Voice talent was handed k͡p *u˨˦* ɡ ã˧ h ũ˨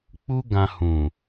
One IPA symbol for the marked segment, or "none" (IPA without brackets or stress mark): u˦